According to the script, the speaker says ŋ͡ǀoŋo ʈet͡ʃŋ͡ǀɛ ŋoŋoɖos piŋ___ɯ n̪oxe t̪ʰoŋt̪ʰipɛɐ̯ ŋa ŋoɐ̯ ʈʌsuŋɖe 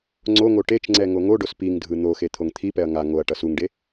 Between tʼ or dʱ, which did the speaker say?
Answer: dʱ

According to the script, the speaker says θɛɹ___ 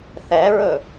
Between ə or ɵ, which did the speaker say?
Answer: ɵ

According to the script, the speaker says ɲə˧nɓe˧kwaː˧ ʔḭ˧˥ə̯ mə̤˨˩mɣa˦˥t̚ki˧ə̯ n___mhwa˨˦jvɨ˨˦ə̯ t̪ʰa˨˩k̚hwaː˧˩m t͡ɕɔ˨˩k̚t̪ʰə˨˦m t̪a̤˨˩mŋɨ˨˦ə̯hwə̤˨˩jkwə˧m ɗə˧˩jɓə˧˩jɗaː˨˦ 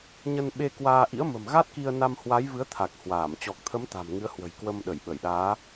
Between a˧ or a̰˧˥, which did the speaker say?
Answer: a˧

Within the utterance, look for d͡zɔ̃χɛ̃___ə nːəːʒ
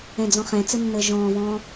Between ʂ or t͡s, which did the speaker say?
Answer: t͡s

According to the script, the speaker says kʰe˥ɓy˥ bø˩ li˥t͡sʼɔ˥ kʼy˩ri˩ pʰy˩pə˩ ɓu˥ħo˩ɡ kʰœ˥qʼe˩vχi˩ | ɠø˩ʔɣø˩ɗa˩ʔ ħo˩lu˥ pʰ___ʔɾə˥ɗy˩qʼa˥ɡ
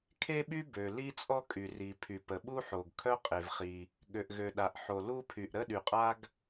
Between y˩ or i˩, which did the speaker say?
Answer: y˩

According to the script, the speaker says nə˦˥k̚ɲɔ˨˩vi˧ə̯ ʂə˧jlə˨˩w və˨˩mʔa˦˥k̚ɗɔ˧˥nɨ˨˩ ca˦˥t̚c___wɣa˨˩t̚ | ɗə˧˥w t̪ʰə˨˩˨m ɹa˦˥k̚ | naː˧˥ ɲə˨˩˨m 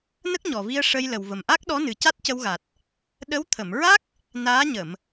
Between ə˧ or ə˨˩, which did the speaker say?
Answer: ə˧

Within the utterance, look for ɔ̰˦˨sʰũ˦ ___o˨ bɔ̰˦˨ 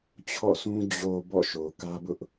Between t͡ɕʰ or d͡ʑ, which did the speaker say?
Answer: d͡ʑ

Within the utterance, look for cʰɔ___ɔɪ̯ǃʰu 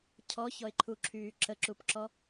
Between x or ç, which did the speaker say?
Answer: ç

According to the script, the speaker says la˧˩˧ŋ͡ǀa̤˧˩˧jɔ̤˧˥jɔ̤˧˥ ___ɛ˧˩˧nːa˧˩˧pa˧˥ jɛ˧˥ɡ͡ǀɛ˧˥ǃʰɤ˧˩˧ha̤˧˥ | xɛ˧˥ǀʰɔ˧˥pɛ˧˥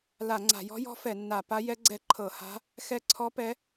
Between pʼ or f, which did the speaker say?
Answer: f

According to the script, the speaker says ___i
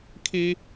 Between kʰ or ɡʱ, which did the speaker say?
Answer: kʰ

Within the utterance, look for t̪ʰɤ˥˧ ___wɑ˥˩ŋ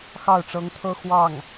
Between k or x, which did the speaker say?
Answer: x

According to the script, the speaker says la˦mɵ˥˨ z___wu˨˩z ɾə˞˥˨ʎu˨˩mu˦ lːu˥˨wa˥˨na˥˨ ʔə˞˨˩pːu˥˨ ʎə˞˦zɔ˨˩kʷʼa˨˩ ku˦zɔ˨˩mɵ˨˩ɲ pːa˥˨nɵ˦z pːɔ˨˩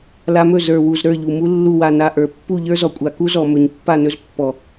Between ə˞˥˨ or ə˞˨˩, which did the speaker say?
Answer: ə˞˨˩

